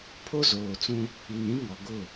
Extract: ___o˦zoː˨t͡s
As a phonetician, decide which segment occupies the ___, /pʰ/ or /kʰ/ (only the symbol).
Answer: pʰ